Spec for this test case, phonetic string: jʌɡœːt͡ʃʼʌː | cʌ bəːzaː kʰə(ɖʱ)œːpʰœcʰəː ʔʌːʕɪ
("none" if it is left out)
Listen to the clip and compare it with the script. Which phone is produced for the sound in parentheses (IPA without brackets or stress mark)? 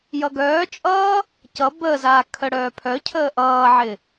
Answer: ɽ